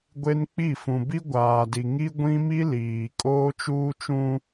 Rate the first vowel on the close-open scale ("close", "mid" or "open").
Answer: mid